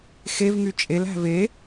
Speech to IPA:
xevŋy t͡ʃʼelæ̤ ve

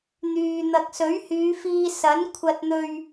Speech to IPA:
n̪yː˨ n̪ɐ˨k̚sɵ˨˥ɥhyː˨˧fiː˧ sɐ˨˥nkʷʰɐ˧t̚n̪ɵ˧ɥ

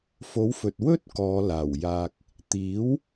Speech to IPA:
fo˨˥wfɵ˨t̚wɵ˥t̚ kɔː˨˧laː˨˩wjaː˧k̚ | t̪iː˨˥w

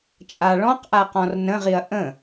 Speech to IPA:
t͡ʃʼaɭɔ̃qʔa qɔ̃rnə̃ʁiɐ̯ ʔə̃

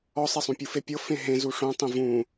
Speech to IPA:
ɔsˤesˤũ pʲufepʲɤ fẽɦẽ zuʂõtˤẽ vũ

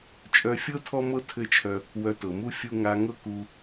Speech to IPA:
t͡ʃʼœ˧fʲɤ˦ tʰɔ˦mɤ˦ tʰɘ˦t͡ʃʰœ˧ | wœ˧tɤ˨mu˦ fʲu˧ ŋa˧ŋɤ˦ku˧

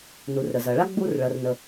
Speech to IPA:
nu˩rɾə˩zɐ˩ɭa˥ ɡ͡bu˧rɭɐ˩rnə˩

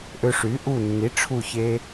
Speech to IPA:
ʔø˧ʂy˩˥ ʔu˧˩nːi˩˥ ʈ͡ʂʰu˧˩çe˧

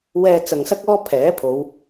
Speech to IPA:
wɛː˧ t͡sɐ˨ŋsɐ˥k̚ɔː˥pʰɛː˨˥ pʰo˨˧w

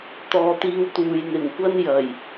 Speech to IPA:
t̪ɔː˨t̪iː˧wt̪uː˨j n̪ɪ˨˩ŋkʷɐ˥njɐ˨˩j

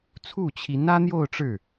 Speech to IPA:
t͡sʰu˥˩t͡ɕʰi˧˥n ä˥n̪jo˥˧ʊ̯ ʈ͡ʂɻ̩˥˩

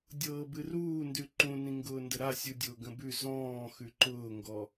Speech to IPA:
dʲɤːbɨruːndʉ ǃũnĩŋɡʊː ndəɾa sʲudʲʊːɡə̃bʉ zɔ̃ː xʉǃʊːŋɡɔ

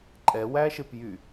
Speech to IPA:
ǃʼɛwæʃep jy

